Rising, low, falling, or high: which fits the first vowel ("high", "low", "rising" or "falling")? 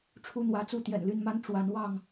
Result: high